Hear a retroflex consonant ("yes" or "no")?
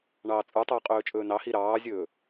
yes